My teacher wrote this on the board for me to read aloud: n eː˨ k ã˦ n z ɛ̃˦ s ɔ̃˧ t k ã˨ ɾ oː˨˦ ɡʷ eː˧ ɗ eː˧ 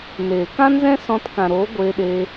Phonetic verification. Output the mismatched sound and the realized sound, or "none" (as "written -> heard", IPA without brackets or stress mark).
none